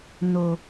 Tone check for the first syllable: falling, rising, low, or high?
low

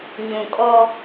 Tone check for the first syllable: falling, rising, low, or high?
low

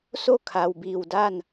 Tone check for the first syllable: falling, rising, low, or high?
falling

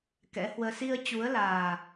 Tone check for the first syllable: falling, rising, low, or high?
rising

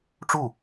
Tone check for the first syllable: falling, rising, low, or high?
falling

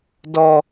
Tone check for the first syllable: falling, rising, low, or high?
high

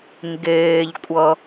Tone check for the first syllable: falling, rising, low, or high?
low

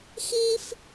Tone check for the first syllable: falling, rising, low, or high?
high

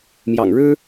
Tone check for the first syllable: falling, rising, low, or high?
low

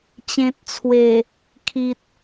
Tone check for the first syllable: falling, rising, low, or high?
low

